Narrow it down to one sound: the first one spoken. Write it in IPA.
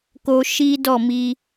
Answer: k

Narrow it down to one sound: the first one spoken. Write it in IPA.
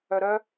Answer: œ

